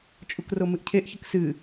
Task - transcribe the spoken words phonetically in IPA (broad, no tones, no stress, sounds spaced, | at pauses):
t͡ʃʼ u k r o m ɨ ʔ cʰ e ʔ ç ɨ k s ɨ